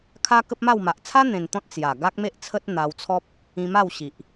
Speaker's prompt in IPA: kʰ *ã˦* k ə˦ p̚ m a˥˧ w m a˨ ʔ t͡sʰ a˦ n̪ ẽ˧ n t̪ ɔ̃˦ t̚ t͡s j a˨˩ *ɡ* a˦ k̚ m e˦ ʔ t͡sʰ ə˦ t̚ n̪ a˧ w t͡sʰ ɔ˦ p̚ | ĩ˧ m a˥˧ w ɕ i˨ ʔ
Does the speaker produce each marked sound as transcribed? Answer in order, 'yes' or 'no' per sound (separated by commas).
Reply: no, yes